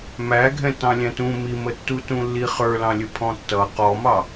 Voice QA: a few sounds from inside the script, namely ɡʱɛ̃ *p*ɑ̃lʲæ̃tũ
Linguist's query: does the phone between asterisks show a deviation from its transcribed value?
yes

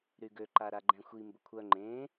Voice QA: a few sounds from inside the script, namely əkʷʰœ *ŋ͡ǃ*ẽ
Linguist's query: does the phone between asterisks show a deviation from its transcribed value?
no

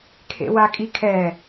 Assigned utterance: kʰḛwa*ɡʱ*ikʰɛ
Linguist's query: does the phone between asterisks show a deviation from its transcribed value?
yes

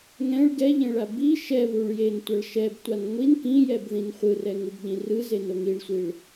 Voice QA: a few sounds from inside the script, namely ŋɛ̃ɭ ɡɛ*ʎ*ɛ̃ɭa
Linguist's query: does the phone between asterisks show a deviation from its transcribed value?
no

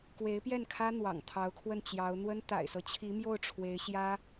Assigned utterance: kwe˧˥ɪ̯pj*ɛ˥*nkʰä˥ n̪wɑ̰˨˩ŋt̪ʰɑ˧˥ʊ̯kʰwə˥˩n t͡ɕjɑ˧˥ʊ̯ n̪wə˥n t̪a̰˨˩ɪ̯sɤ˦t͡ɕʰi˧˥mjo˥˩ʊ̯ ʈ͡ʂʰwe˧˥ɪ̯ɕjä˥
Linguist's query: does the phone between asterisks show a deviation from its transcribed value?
yes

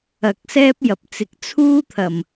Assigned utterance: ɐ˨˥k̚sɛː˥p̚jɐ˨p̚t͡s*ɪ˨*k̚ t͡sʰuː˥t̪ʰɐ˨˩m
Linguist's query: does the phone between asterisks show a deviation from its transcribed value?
no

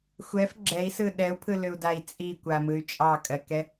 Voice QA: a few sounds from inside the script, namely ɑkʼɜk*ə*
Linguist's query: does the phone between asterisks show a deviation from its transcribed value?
yes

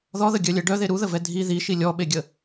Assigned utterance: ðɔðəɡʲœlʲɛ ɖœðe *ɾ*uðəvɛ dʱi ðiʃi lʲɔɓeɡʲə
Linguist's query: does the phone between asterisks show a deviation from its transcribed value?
no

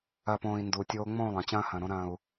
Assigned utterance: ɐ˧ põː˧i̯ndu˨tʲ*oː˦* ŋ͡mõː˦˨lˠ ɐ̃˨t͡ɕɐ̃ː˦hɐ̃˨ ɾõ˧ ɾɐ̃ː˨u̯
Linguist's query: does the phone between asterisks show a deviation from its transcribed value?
no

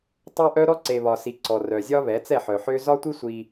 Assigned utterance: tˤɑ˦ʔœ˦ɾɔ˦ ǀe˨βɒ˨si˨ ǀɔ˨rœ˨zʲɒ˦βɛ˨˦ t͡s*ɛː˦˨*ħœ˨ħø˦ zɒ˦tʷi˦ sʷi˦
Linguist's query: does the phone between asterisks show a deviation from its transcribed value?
yes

